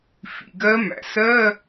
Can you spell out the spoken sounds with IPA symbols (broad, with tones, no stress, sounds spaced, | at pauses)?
f ḭ˩ ɡ ɜ˧˥ m æ̰˩ s ɜ˧˥˧